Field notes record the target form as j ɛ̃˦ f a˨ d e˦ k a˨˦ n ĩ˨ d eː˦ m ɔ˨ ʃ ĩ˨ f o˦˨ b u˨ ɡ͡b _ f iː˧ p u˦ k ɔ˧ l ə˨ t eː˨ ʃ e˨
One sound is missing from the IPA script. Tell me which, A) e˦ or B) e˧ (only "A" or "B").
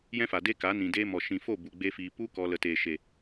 A